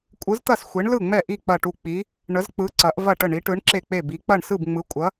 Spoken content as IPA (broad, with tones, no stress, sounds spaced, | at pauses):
kʷʼ ɯ˨˥ z t̪ ɐ˥˩ s xʷ e˨˥ ɳ l ɯ˥˩ ŋ͡m ɛ˥˩ ʔ i˥˩ k͡p ɐ˥˩ ʈ u˥˩ k͡p i˨˥ | ɳ ə˨˥ z k͡p ɯ˨˥ ǀ ɐ˨˥ ʔ v ɐ˥˩ ʈ ə˥˩ ɳ i˨˥ ʈ ɯ˨˥ ɳ ǁ e˥˩ k͡p e˥˩ b i˨˥ k͡p ɐ˥˩ ɳ s ɯ˥˩ b ŋ͡m ɯ˨˥ kʷʼ ɐ˨˥